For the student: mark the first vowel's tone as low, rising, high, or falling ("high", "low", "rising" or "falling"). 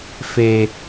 low